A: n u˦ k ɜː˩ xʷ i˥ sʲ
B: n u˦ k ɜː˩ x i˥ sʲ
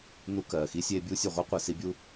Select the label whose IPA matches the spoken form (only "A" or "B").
B